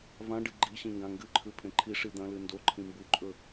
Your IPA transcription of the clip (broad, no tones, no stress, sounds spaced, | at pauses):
v ã ɖ ɨ ɡ͡ǃ i ɕ ĩ ŋ ɡ ã ŋ ɡ ɨ ǃʰ ʉ pʰ ẽ ǃʰ i ʂ i d̪ ɐ̃ l ɨ n d o ǃʰ ĩ m b u ǃʼ ɵ